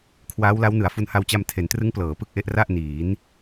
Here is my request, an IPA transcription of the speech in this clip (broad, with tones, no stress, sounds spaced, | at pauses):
kʰ w aː˦˥ w l a˦˥ w n ɯ˩˦ a̯ f u˧ n h a˧ w t͡ɕ a˧ m tʰ e˩˦ n t r ɯ˦˥ ŋ p l ɤː˩˦ p ɯ˦˥ k̚ ʔ e˦˥ ʔ r a˥˩ ʔ n iː˩˦ n